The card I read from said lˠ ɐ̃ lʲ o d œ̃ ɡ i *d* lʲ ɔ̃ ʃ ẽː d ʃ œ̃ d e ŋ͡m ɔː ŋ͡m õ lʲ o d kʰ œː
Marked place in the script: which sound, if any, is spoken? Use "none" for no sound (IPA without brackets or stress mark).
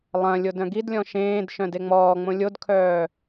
d